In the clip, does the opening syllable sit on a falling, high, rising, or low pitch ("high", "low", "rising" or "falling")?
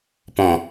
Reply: low